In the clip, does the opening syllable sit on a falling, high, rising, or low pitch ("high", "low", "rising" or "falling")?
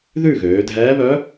falling